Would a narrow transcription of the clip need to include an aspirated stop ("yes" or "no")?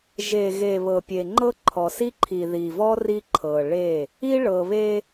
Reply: yes